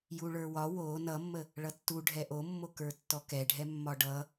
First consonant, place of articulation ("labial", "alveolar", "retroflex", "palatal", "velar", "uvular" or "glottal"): palatal